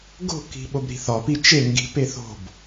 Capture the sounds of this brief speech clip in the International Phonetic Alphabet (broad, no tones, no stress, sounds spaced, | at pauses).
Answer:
ɡ o̤ k i̤ ɓ o b ɾ i̤ θ ɒ p i t͡ʃ e ŋ ɡ i̤ p e θ o̤ b